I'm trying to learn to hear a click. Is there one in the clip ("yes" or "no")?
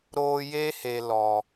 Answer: no